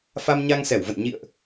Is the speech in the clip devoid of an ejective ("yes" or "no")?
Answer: yes